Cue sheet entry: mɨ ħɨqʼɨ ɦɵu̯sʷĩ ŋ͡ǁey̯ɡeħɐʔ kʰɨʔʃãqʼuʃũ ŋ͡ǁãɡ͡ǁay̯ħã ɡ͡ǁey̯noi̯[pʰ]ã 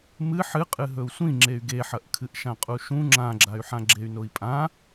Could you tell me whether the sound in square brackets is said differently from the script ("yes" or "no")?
yes